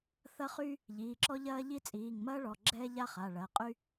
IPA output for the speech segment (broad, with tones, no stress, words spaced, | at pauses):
θɐ˥χyː˥ | ʎiː˩˧˩ǁɔ˥ʎɐː˥ʎi˥ t͡sʼiː˩˧˩ŋmɐː˥ɭɔ˩˧˩ ɡ͡ǁɛː˥ʎa˥χa˩˧˩ɭɐ˩˧˩ qʼy˥